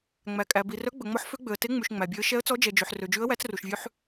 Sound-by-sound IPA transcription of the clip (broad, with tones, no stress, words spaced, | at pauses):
ŋ͡mæ˨kʼæ˨ bi˨rœ˧˥ ɡ͡bɵ˨ŋ͡mɔ˧˥ħfø˧˥ɡ͡bø˨ə̯ te˧˥ŋ͡mʉ˨ʃ ŋ͡mæ˨bʲø˧˥ə̯ ʃɛ˧˥ə̯t͡sɔ˧˥d͡ʒɛ˨d͡ʒø˨ħ rø˨d͡ʒʉ˧˥ə̯ wæ˧˥t͡sru˨ʃvʲʉ˧˥ħ